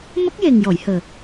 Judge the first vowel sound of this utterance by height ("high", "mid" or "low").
mid